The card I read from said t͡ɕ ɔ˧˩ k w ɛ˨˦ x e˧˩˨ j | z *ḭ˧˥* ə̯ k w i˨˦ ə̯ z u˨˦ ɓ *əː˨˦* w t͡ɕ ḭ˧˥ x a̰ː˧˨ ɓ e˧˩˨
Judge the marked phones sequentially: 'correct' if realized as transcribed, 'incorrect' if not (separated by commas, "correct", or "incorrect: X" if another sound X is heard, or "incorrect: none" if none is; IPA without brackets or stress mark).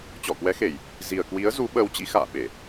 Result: incorrect: i˨˩, correct